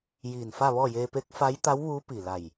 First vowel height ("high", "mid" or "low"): high